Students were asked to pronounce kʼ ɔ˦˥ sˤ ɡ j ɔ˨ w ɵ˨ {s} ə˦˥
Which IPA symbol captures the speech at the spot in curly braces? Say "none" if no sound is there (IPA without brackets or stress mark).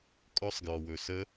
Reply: s